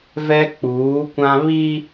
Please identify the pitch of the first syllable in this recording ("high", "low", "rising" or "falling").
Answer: high